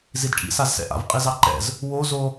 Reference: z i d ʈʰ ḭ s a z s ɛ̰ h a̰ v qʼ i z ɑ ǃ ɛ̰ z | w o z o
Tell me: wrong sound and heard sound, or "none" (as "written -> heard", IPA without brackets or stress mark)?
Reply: h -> ʔ